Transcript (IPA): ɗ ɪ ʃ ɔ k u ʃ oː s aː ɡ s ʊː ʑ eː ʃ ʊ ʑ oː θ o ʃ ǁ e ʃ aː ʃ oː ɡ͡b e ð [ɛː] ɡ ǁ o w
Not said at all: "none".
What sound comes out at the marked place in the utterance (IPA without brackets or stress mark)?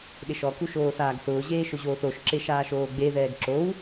ɛː